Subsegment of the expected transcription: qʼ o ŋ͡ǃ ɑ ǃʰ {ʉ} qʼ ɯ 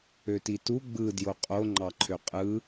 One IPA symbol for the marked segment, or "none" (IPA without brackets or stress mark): ø